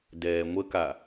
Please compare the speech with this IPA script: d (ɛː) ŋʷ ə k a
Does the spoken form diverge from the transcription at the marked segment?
no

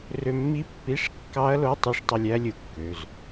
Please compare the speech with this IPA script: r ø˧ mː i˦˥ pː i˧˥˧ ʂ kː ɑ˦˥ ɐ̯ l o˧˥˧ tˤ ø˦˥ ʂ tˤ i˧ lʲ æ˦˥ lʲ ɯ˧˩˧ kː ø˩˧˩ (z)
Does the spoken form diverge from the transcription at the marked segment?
no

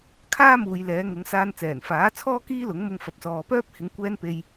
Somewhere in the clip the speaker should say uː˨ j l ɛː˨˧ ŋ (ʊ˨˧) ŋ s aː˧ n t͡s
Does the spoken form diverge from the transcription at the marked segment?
no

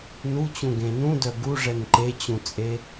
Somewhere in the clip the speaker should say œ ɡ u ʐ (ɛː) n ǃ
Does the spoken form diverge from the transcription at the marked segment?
yes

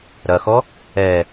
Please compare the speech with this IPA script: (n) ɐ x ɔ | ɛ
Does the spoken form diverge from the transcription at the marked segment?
yes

